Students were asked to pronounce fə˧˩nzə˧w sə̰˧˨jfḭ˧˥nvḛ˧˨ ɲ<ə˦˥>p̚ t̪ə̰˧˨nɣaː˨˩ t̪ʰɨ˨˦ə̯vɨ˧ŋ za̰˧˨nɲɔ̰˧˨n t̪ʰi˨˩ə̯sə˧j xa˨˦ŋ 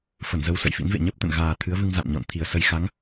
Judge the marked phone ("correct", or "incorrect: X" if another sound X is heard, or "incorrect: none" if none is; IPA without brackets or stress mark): correct